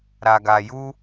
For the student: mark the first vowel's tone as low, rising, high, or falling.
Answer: low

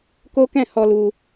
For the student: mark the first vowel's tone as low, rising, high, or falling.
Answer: high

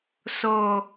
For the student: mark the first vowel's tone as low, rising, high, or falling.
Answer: low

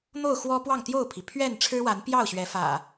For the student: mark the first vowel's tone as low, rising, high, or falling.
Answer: falling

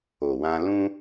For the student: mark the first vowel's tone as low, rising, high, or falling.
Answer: low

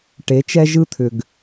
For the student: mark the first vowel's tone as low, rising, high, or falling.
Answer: rising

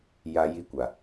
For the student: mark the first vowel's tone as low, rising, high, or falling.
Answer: low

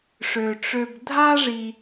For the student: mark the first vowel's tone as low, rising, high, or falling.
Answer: low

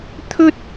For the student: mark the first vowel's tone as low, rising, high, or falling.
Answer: high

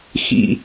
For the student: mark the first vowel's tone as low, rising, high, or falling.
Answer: high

